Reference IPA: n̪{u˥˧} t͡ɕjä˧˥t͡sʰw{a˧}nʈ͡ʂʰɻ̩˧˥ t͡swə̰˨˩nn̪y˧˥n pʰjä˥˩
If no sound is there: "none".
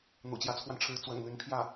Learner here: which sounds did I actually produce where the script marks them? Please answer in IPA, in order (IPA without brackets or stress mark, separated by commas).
ṵ˨˩, a˧